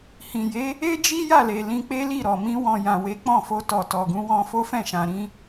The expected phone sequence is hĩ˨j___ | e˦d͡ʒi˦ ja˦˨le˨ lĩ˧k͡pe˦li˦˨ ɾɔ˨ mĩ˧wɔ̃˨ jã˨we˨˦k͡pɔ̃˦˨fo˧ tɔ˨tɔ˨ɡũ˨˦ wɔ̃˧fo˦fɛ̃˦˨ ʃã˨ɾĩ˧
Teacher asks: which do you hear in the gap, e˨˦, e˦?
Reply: e˨˦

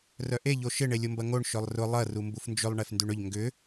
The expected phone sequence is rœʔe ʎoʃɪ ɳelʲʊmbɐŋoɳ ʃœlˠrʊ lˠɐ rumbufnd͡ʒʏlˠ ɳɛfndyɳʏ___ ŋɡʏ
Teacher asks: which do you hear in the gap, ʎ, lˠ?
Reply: ʎ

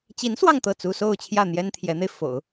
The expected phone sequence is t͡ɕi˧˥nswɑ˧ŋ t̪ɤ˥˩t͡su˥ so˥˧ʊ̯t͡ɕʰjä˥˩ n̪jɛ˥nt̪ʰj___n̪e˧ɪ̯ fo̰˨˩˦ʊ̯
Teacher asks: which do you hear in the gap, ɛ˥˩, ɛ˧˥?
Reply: ɛ˧˥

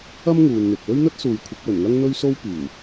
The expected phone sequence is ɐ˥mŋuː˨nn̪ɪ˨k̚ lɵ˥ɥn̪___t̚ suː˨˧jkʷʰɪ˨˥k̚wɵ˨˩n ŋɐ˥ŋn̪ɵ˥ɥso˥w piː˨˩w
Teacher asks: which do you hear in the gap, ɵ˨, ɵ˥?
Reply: ɵ˥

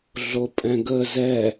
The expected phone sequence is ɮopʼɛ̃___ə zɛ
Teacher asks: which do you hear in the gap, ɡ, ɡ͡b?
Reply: ɡ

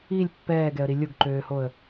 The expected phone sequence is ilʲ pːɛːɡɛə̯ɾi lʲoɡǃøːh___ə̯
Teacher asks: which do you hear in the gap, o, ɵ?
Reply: o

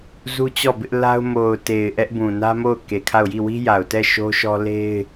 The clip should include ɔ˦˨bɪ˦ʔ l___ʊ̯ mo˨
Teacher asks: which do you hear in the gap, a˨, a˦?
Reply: a˦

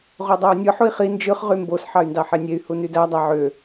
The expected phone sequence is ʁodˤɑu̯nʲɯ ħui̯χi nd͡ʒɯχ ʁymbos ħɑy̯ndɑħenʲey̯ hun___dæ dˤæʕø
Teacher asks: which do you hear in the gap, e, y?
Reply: y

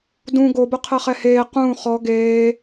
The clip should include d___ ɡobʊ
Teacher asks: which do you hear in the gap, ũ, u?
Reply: ũ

